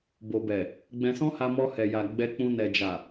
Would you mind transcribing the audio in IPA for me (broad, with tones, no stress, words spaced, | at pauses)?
bo˨bɛ˨ | ɡ͡bɛ̃˧sɔ̃˦ha˧ mɔ˧hɛ˨ja˨ ɡ͡bɛ˧k͡pũ˧ nɛ˨d͡ʒa˨